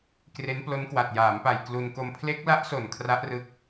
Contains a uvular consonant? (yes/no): no